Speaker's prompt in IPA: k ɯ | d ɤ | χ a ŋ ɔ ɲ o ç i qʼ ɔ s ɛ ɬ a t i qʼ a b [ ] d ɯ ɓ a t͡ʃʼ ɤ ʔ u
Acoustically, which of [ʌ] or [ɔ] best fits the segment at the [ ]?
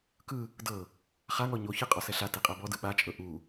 ɔ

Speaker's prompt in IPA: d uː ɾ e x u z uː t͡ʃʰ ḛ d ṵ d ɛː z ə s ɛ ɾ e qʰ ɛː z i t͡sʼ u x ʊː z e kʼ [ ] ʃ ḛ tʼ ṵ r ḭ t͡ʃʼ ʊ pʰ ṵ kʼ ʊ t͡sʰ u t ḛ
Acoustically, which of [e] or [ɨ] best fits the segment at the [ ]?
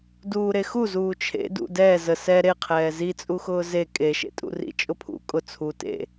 e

